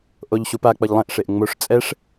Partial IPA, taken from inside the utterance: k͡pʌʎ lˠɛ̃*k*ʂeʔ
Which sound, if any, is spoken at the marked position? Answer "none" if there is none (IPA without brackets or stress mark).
ʔ